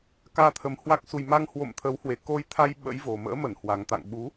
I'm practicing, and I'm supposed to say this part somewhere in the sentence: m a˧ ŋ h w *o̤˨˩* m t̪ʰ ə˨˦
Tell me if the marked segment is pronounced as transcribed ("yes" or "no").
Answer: no